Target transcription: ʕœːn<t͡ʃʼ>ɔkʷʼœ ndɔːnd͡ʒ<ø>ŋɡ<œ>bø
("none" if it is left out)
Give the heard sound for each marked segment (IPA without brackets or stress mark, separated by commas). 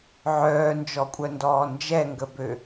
d͡ʒ, ɛ, ə